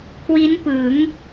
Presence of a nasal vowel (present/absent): absent